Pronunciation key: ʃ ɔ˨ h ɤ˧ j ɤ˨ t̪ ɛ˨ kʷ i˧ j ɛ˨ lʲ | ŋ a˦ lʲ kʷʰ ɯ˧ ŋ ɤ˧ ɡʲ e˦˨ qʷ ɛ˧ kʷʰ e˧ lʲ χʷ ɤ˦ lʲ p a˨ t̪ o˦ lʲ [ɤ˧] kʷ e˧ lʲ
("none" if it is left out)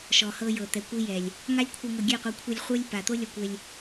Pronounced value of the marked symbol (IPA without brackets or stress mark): ɔ˧